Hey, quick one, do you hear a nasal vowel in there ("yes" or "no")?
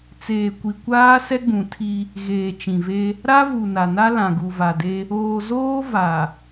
yes